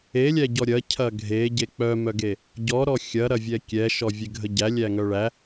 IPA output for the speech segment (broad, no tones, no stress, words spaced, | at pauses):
elʲæɟɔ ɾʲɐcʰɐ ɡʱeɟe k͡pœmœɡe | ɟɔɾɔ xʲɐɾɐvʲɛ kʲɛʃɔvʲeɡʱə ɟælʲæŋœ ɭæ